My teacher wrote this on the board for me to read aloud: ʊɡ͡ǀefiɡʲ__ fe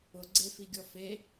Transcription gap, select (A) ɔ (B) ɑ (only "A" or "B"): A